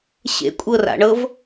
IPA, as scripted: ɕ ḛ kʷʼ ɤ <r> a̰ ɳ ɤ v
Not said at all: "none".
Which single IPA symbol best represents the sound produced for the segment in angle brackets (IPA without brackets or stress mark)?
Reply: r